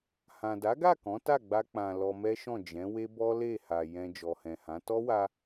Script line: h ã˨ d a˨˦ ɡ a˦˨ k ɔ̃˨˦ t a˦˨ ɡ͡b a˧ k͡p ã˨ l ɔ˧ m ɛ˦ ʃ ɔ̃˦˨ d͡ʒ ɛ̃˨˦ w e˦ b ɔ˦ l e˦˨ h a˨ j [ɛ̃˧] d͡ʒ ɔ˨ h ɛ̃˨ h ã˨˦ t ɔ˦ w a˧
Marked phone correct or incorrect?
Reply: incorrect